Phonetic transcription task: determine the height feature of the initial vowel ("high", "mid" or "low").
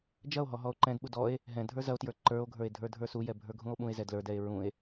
low